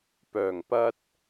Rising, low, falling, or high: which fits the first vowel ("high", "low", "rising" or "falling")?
low